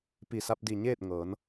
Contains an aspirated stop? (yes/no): no